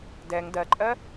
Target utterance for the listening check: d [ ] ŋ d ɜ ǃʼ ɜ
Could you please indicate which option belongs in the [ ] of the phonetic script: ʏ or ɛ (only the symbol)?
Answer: ɛ